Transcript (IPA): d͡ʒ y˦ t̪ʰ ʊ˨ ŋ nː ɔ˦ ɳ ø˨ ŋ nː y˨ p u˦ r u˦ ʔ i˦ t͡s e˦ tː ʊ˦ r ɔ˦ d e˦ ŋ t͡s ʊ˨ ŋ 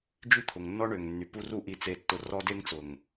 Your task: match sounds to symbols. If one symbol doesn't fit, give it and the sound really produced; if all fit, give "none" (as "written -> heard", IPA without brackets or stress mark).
none